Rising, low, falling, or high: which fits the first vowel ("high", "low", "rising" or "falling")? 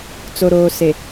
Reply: low